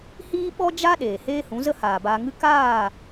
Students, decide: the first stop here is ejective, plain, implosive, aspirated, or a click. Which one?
implosive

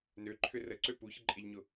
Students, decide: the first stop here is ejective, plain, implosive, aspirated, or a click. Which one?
click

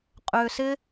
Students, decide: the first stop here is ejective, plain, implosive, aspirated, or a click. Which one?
ejective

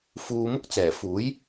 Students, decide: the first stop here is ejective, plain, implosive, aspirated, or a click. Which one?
plain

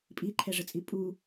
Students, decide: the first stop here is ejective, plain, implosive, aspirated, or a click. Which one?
ejective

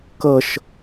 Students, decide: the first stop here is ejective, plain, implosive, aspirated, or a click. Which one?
plain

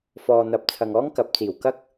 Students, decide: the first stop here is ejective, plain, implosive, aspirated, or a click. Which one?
plain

